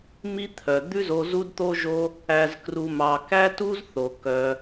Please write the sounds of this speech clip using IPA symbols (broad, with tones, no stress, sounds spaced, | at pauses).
m i˦ t̪ʰ œ˨ d̪ ʉ˦ z o˧ z u˦ d t̪ o˦ ʒ o˦ | æ˨ z k r u˨ m ɑ˨ k æ˦ t u˦ z θ o˨ k œ˧